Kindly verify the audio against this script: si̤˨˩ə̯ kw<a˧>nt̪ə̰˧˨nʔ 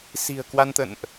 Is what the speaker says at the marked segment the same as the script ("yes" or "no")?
yes